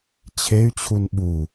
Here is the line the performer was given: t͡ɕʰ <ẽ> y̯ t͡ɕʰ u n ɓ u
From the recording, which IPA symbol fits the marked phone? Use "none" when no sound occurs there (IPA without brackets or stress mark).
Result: e